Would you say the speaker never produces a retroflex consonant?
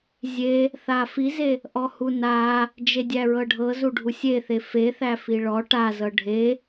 no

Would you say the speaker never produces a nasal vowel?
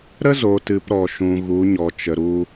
no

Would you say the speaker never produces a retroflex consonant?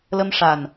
no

